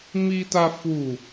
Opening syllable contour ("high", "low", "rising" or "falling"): high